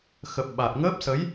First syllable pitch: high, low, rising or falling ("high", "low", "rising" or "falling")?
low